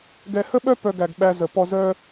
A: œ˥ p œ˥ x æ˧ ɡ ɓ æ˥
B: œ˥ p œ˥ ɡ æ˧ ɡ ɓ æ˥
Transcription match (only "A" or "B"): B